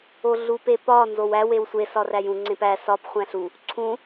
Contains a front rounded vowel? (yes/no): no